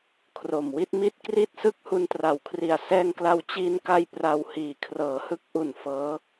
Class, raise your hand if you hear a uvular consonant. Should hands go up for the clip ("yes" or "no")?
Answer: no